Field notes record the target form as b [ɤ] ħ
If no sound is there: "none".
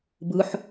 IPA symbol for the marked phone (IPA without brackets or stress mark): ɯ